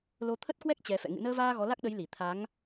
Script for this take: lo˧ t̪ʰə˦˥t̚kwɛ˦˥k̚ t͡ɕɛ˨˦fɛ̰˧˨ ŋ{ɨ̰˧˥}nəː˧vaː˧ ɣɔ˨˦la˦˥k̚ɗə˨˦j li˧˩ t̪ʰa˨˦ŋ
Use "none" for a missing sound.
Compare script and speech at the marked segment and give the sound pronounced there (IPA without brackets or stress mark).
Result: ɨ̰˧˨